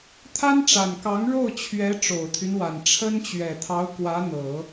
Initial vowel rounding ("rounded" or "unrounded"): unrounded